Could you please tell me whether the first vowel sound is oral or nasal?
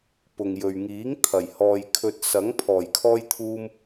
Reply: oral